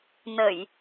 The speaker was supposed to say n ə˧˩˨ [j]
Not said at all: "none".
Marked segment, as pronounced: j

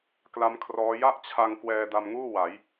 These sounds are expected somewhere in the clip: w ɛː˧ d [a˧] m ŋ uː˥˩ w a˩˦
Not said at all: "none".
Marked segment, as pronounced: a˧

